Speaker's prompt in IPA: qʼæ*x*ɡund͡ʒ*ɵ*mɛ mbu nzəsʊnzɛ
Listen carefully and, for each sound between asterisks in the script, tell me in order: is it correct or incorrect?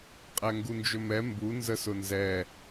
incorrect: ŋ, correct

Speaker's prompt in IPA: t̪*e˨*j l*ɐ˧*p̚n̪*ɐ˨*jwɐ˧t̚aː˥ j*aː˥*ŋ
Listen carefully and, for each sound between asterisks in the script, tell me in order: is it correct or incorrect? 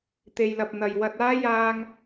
correct, incorrect: ɐ˨, correct, incorrect: aː˧

